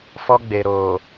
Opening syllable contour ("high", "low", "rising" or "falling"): high